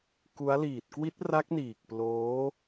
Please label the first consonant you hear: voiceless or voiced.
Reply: voiceless